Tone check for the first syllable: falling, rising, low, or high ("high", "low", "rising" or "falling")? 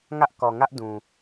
high